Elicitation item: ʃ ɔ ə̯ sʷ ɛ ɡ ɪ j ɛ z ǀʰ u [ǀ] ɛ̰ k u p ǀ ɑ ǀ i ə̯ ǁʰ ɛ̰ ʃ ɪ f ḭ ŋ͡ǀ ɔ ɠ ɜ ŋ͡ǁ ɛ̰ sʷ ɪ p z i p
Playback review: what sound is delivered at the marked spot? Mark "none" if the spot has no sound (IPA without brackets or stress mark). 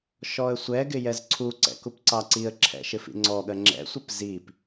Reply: ǀ